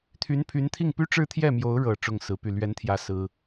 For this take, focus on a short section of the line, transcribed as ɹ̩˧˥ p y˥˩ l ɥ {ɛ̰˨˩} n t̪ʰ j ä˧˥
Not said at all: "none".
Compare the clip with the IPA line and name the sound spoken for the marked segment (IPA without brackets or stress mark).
ɛ˧˥